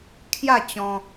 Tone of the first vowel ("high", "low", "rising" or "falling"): falling